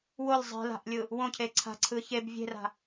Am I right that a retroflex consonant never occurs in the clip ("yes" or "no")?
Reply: yes